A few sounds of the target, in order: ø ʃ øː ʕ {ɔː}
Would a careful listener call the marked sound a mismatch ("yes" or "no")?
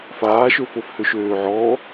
no